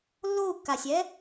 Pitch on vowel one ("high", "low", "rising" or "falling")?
falling